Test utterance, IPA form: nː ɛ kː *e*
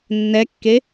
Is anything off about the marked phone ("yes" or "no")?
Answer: no